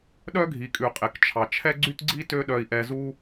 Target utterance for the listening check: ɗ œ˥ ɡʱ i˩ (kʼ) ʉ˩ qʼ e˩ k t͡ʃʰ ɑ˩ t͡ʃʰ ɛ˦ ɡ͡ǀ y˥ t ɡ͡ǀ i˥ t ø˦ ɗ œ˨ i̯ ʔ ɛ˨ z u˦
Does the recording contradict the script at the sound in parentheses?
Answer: no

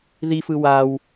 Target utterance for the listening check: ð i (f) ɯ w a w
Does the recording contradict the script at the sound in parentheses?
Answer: no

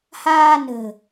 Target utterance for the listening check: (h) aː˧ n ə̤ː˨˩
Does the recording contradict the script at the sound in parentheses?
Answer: no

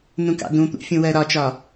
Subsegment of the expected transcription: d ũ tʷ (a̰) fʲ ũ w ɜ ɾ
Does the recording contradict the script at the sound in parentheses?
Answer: yes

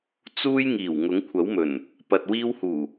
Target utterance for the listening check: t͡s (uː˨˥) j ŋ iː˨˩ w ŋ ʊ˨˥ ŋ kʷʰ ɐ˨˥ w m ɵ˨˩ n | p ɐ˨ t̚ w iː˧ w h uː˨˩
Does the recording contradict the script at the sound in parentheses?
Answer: yes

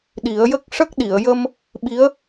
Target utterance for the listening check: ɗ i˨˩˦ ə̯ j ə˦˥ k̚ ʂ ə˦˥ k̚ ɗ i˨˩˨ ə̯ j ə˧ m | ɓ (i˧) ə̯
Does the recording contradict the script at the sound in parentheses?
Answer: yes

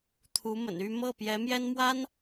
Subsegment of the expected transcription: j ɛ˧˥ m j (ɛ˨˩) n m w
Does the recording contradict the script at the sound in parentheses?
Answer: yes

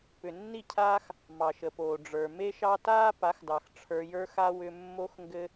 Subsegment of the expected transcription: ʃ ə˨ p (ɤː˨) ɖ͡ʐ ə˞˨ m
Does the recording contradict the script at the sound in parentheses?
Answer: yes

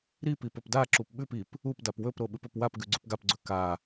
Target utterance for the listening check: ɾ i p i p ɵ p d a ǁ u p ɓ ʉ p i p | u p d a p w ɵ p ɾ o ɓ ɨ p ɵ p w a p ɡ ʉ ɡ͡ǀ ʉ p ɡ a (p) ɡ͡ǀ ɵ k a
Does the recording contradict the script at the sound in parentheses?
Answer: no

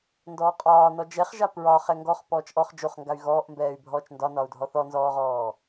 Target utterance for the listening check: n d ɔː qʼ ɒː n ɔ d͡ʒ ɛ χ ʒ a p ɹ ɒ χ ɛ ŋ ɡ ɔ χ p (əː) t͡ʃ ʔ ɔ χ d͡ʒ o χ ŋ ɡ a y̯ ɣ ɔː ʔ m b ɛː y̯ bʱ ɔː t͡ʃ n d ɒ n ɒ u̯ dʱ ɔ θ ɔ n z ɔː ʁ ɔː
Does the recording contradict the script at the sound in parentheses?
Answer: yes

